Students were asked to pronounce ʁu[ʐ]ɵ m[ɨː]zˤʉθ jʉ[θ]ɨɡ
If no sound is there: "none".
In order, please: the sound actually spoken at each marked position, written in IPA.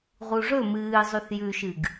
ʐ, ɨː, ʃ

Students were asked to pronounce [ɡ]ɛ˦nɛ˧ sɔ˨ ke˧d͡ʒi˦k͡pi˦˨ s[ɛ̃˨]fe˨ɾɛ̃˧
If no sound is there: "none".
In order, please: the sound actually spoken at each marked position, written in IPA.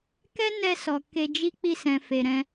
k, ɛ̃˨

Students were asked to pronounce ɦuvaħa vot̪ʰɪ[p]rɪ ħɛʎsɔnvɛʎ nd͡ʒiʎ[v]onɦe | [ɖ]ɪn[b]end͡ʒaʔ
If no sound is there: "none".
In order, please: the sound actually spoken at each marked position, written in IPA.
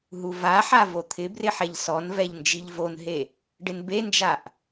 b, v, ɖ, b

